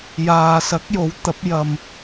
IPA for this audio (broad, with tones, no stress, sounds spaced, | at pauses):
j aː˨ s ɐ˨˥ k̚ j o˨˥ w t̪ ɐ˨˥ p̚ j ɐ˧ m